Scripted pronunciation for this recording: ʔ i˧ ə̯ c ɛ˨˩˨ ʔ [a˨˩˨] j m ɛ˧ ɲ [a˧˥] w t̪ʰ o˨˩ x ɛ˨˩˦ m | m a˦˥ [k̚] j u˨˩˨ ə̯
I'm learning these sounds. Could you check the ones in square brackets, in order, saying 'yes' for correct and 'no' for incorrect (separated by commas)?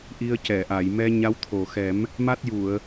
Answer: yes, yes, no